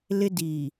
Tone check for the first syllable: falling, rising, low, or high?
high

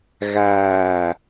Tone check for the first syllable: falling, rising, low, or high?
low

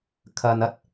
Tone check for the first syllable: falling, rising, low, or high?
low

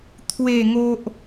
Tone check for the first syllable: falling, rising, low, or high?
falling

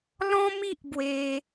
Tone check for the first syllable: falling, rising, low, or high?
high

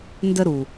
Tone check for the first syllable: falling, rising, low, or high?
high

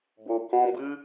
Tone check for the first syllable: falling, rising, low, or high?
low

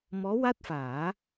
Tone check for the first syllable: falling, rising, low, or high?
rising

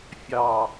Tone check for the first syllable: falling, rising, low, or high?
low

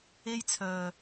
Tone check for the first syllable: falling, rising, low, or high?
high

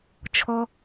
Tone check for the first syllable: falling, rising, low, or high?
high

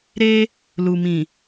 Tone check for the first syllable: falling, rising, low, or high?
high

